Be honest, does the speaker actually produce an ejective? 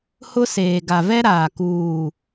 no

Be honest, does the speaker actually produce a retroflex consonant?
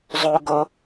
no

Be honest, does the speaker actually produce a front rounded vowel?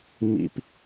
no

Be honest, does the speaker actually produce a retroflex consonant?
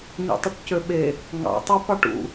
yes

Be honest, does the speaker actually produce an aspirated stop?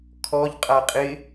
yes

